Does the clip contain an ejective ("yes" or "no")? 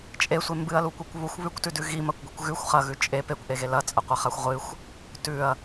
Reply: yes